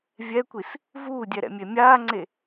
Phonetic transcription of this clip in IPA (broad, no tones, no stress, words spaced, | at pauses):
vʲɛkʷis | vuːdʲɛɾɛ̰mʲe mʲaːŋ͡ǀe